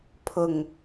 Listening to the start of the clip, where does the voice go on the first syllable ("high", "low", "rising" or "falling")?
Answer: low